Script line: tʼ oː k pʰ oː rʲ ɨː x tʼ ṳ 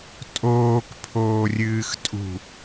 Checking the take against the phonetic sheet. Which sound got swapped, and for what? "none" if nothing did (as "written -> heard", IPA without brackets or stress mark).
none